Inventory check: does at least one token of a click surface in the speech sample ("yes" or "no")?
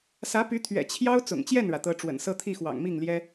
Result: no